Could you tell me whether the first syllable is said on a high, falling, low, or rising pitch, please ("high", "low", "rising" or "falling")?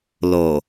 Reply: low